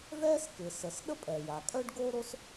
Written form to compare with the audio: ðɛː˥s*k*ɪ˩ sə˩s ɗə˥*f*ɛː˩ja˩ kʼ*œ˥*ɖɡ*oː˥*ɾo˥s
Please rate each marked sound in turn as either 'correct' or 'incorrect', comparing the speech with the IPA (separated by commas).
correct, incorrect, correct, correct